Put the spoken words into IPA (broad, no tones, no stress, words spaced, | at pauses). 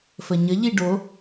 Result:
fəɲəʎi ɖo